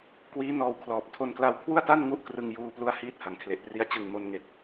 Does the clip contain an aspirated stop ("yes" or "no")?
yes